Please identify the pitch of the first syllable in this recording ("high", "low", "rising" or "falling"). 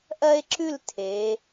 high